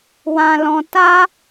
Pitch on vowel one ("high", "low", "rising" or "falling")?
high